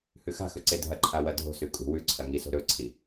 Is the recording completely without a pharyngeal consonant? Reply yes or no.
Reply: yes